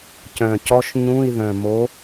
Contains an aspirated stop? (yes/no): no